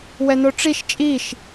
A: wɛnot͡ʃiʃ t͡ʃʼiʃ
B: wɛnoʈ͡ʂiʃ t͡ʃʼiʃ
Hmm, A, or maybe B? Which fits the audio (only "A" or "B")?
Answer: B